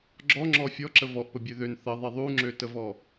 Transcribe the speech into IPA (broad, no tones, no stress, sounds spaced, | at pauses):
ɡ͡ǁ ɔ ŋ͡ǁ ɔ fʲ ɔ ǁ ə v ɔ ʔ p ə bʲ ø ð ø n θ ə ðˤ i ðˤ u ŋ͡ǁ ø t ə v ɔ